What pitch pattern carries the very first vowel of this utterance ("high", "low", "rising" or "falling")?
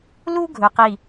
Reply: high